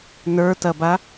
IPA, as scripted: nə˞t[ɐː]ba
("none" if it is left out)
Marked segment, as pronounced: ɐ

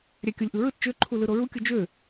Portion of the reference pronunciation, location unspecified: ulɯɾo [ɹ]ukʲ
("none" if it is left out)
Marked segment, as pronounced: ɹ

